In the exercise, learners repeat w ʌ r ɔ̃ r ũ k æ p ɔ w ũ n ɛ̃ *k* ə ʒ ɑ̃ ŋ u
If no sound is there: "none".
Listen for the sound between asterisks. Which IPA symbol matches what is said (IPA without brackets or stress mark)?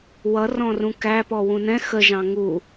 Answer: x